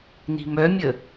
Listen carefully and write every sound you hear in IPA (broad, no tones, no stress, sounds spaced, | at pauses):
n i̤ m œ mʲ ə